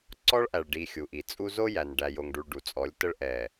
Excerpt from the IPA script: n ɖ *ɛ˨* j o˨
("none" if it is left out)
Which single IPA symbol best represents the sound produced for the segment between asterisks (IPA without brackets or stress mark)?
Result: æ˨